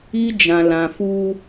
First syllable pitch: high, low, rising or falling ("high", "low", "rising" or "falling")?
high